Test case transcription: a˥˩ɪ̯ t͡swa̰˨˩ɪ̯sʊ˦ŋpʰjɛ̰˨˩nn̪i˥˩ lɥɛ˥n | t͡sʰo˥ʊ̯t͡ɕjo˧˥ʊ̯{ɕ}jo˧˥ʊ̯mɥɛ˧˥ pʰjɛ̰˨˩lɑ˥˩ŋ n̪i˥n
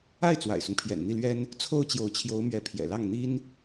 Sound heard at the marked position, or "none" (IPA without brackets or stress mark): t͡ɕʰ